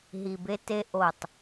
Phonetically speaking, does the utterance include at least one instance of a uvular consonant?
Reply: no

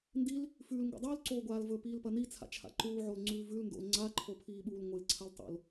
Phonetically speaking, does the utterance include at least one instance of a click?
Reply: yes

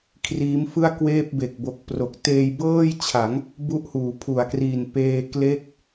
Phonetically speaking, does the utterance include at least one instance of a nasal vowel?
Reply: no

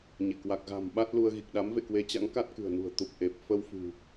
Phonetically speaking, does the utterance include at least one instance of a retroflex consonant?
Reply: no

